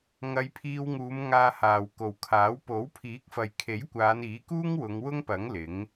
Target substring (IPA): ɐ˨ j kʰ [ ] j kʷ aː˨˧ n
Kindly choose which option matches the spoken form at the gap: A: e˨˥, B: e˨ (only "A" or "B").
A